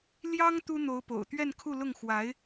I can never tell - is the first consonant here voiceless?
no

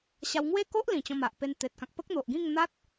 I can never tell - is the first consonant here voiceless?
yes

